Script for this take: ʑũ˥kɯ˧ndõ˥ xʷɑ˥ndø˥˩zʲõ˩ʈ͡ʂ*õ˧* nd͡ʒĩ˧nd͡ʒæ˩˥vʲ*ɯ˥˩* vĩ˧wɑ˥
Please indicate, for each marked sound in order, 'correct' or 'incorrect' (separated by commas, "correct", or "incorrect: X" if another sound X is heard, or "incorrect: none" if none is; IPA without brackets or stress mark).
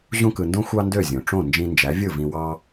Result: incorrect: õ˥˩, correct